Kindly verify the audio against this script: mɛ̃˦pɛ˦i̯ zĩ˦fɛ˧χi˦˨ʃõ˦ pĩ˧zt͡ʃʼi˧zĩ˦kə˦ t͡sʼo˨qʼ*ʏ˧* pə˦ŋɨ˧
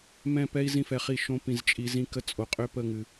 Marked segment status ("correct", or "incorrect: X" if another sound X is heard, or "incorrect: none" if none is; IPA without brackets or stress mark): correct